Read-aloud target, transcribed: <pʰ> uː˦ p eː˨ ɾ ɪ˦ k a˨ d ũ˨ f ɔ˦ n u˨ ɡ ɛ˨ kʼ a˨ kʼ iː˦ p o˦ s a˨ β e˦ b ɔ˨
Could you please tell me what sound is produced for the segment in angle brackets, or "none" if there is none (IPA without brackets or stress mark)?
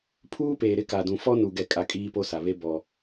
pʰ